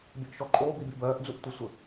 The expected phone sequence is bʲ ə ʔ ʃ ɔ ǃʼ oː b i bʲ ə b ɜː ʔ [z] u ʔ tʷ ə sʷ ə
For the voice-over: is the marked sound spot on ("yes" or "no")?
no